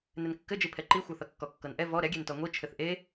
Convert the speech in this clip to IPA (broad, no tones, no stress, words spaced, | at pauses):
nɘnkːɘd͡ʒi pʰɛǃixʷɤθʌ kːɔkːɤnʔɛ vɔ ɾɛɡʲentɔ ŋʷi t͡ʃʰɘθʔe